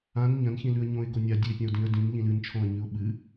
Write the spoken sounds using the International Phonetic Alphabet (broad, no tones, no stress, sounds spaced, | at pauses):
ã n ɲ ɐ̃ n ç ĩ l ʉ ə̯ ɲ õ ɪ̯ ɡ o nʲ a dʲ ʉ ɪ̯ pʲ ɐ̃ ʊ̯ d ĩ ə̯ d ĩ n ʎ ĩ l ɨ n t͡ʃʰ õ ə̯ ɲ ʉ ʊ̯ ɓ ɨ